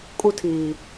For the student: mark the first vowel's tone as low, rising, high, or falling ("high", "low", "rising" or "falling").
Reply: high